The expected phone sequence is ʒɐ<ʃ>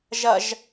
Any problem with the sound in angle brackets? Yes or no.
yes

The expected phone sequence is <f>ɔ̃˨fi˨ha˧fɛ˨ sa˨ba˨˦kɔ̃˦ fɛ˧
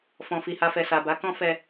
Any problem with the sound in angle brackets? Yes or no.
no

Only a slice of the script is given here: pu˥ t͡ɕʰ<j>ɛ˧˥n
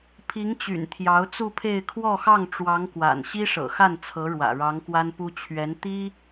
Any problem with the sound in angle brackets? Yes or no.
yes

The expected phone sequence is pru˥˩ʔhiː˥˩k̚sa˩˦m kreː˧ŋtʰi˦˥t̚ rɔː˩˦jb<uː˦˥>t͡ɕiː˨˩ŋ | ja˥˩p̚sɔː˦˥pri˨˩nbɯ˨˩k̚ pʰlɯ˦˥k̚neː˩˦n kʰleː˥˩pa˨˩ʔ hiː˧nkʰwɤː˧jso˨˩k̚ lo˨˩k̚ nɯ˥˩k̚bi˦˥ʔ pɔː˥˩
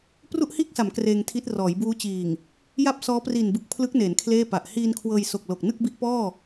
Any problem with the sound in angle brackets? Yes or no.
no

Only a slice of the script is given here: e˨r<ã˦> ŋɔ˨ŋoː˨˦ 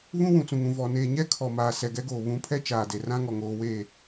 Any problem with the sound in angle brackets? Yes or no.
no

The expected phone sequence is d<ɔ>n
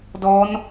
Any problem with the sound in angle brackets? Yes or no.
no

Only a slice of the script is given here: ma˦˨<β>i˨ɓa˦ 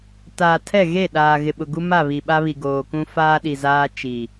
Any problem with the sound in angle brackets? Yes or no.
no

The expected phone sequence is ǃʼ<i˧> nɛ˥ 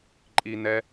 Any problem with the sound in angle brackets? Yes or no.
no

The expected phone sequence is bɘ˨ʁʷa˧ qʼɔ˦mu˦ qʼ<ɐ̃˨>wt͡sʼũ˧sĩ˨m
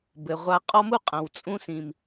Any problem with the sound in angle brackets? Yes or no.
no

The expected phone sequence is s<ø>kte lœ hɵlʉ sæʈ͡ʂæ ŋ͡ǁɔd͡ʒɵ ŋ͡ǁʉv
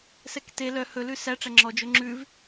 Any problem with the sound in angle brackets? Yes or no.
yes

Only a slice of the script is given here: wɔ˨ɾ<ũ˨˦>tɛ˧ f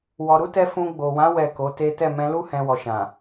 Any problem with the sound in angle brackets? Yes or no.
yes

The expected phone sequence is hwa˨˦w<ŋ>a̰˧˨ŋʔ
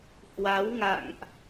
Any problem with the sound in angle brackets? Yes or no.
no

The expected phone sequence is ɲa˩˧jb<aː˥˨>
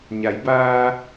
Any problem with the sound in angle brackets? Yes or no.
yes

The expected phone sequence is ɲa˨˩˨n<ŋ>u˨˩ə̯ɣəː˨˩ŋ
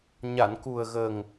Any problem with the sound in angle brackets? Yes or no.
yes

